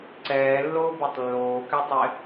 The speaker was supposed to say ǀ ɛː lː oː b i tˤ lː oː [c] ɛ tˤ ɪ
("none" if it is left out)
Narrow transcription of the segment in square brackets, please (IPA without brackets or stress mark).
k